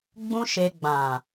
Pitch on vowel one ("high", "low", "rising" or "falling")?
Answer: high